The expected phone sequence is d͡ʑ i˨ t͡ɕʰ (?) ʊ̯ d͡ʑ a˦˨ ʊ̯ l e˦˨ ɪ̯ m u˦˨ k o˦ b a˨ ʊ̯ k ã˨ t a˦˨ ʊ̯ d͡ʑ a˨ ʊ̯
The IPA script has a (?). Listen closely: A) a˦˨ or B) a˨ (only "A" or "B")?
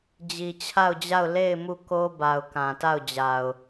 A